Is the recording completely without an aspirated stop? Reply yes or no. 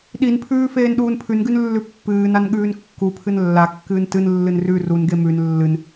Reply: no